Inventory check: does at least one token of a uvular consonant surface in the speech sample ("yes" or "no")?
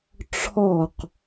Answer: yes